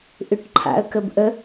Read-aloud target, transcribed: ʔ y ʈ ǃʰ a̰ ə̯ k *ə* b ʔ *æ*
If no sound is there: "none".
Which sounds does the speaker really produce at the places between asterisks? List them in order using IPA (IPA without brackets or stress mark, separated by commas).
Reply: ə, ə